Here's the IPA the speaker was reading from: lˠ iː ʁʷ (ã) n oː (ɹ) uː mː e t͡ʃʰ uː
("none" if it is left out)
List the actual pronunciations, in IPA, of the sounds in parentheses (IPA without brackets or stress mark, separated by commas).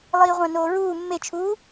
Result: ã, ɹ